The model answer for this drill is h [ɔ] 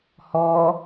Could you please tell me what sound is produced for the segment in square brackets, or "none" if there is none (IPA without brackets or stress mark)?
ɔ